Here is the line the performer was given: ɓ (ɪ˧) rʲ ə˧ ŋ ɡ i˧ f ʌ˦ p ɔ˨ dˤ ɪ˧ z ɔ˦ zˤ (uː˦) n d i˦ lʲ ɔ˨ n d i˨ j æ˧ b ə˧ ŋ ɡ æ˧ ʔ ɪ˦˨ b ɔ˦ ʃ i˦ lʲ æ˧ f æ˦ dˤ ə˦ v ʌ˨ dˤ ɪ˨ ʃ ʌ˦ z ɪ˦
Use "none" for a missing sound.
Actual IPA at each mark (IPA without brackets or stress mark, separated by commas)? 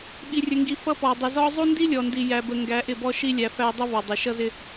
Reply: i˧, u˦